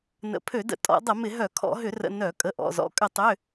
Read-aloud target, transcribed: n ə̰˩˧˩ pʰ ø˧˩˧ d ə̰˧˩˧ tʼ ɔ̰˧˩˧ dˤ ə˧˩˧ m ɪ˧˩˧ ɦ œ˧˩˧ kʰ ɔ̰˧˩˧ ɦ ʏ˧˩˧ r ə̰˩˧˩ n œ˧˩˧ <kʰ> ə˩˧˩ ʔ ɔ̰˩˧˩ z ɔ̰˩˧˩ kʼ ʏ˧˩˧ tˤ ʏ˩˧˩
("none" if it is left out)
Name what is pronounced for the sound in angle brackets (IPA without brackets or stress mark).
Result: kʼ